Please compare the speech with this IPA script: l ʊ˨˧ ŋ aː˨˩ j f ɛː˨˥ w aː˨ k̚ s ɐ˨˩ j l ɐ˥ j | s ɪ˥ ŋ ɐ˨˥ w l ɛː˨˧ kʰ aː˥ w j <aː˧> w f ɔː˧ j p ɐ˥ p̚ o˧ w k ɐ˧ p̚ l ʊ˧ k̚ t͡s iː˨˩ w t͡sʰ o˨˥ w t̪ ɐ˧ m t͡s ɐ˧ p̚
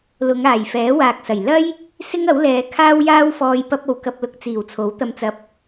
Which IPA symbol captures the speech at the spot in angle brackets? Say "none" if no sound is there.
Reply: aː˥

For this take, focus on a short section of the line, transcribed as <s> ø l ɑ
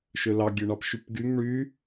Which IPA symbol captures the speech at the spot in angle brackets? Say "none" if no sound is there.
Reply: ʃ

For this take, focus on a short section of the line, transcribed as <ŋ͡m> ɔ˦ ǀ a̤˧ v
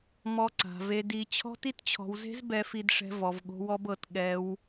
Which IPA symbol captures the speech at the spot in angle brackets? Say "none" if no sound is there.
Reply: m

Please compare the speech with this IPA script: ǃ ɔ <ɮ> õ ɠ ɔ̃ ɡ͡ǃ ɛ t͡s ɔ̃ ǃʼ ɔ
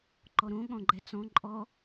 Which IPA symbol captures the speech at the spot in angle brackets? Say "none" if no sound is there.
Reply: ɾ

